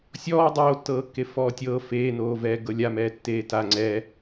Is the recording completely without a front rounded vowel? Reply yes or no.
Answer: yes